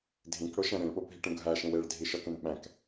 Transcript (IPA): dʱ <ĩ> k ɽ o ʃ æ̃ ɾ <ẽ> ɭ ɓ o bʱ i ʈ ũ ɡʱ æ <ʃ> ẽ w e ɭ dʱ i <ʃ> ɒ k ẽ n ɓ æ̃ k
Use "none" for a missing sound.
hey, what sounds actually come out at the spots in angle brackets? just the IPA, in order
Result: ĩ, ẽ, ʃ, ʃ

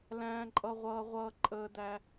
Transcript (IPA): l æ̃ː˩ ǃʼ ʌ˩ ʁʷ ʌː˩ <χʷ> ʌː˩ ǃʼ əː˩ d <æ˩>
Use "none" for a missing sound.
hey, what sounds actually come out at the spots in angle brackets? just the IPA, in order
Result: ʁʷ, æ˩

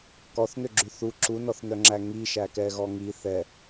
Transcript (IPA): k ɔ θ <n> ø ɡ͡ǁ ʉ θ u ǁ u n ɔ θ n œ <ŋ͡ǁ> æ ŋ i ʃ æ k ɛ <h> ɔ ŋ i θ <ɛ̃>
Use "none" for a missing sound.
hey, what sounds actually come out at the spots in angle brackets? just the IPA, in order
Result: n, ŋ͡ǁ, ɣ, ɛ

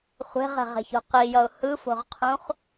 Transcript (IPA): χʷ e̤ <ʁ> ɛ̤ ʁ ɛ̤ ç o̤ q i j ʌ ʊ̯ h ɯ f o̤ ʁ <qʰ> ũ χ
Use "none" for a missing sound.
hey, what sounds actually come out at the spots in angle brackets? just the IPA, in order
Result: ʁ, qʰ

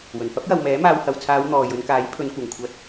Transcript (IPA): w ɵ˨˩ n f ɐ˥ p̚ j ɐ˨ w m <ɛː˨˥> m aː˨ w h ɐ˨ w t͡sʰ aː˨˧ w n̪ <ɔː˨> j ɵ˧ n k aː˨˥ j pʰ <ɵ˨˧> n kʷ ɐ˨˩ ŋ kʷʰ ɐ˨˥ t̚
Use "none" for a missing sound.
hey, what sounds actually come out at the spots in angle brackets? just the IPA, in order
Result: ɛː˨˥, ɔː˨, ɵ˨˧

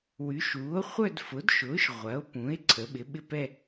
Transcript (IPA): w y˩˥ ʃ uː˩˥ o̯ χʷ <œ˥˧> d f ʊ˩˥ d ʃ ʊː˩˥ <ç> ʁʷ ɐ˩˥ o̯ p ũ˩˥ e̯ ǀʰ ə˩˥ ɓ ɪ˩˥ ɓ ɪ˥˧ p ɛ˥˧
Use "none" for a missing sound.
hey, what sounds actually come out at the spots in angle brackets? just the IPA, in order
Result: œ˥˧, ʃ

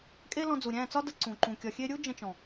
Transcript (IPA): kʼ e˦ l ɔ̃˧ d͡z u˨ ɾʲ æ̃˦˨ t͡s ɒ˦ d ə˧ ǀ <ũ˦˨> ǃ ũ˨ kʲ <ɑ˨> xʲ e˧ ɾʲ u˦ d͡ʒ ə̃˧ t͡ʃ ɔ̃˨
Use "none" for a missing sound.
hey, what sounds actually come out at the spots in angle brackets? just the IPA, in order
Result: ũ˨, ɒ˨

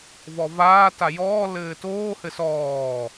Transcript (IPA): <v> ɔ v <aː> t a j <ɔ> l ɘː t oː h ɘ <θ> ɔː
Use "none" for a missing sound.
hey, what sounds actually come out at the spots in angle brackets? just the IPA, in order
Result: v, aː, ɔː, s

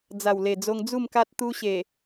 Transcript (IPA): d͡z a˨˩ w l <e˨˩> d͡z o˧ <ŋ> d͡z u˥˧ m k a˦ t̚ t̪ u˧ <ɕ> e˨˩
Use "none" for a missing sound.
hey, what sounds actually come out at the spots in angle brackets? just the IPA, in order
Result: e˨˩, ŋ, ɕ

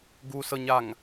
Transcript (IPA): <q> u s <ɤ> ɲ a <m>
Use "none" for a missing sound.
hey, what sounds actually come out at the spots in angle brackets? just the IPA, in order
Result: ɡ, ɤ, ŋ

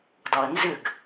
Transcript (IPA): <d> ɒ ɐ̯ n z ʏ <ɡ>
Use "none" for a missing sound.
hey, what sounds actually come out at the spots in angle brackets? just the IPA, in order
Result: d, ɡ

